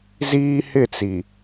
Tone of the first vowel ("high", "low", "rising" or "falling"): high